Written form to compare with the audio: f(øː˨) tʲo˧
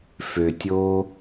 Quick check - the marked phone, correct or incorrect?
incorrect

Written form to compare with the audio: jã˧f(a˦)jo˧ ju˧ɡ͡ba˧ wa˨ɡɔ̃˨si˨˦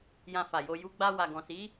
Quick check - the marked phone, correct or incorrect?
incorrect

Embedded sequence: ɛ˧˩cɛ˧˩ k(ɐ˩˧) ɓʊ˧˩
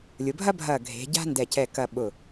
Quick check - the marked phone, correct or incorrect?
incorrect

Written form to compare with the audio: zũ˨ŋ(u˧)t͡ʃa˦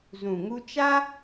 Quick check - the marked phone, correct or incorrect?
correct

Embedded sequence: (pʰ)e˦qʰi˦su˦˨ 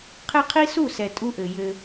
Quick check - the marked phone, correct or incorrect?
incorrect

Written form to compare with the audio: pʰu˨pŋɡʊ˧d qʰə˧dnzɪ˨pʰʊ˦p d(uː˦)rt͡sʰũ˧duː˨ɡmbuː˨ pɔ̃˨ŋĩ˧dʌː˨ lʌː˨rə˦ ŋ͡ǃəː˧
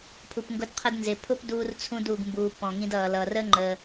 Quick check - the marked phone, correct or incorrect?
incorrect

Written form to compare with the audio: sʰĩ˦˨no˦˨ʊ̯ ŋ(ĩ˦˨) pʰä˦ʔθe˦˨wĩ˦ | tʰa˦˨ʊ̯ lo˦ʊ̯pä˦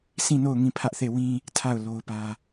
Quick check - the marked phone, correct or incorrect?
correct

